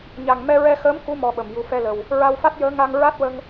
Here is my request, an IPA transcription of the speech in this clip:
ɲ a˨˩ ŋ m ɛ˧ ɹ ɛ˧ x əː˧˥ m k u˧˥ m ɔ˧ ɓ ə˨˩ m j u˨˩ f ɛ˧ l ə˨˩ w | ɹ a˧ w f a˦˥ t̚ j əː˧˥ ŋ a˧ ŋ ɹ a˦˥ t̚ w ə˧ ŋ

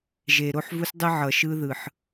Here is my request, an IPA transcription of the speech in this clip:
ʒ e˨ ɾ o˦ ħ v u˦ s dˤ ɯ˦ ʕ ʌ˨ ʃ ɯ˦ ð ɯ˨ ħ

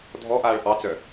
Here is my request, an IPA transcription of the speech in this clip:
dʱ ɔ ʔ aː ɭ ʔ ɑ t͡s œ

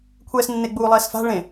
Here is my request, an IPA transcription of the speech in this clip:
kʷʰ ɛː s nː e ɡ͡b uː lˠ ɛː s f a̤ ɭ ẽ

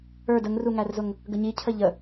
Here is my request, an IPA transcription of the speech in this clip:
ə˞ d ə ŋ r u ŋ æ r z ʊ ŋ | ɡ ə ɲ i cʰ ə ʎ ə

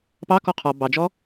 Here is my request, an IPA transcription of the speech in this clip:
p ɑ k ɔ qʰ ɔ b ɑ d͡ʒ ɔ

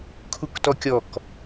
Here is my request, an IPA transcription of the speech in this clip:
kʰ u k t ɔ kʲ ɔ k

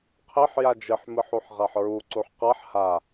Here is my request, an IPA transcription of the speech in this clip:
qʰ e ħ j a d͡ʒ ɨ ħ m ɨ ħ u ħ ʁ a ħ ɹ u ǀ u ħ q a ħ h a

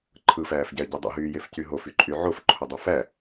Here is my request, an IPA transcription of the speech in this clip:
ǃʰ ɯ f æː f ɟ æ ə̯ ɟ e dˤ ṵ ɦ yː j e f c y ɦ o f y ǃʼ y ʕ o f ǃʰ o dˤ u f æ

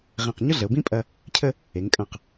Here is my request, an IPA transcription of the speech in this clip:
ʁ ẽ˧˩ q ɲ ʊ˥ ɮ ə˩˧ o̯ b ĩ˥ pʼ ɐ˧ | cʰ ə˥˧ | e˩˧ ŋ kʼ ɐ̃˧˩ q

